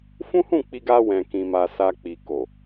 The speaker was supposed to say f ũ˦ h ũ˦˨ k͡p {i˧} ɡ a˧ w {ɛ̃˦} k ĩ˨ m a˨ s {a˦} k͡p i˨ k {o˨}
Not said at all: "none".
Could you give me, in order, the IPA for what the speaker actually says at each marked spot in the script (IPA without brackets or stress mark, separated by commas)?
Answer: i˧, ɛ̃˨, a˨, o˨